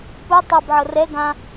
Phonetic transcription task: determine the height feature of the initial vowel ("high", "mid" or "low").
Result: high